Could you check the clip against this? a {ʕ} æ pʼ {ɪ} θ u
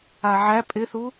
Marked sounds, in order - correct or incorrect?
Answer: correct, correct

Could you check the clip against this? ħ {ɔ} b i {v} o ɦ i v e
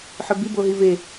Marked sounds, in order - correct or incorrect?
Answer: incorrect, incorrect

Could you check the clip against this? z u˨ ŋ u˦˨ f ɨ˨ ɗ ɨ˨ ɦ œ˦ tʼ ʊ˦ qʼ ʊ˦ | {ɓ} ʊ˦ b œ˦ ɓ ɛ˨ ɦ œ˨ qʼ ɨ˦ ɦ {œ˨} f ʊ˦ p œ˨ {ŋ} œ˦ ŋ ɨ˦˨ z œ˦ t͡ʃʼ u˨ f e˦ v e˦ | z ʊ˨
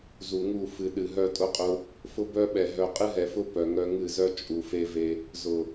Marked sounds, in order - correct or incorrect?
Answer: incorrect, incorrect, correct

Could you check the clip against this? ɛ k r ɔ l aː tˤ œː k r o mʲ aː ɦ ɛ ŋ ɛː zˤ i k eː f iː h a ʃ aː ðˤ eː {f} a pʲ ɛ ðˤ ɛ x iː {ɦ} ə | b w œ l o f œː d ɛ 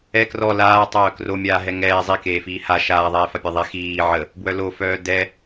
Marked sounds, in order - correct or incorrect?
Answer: correct, incorrect

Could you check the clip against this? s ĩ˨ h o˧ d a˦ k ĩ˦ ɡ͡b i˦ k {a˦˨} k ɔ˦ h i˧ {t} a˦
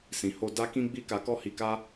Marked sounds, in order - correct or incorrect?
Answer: incorrect, incorrect

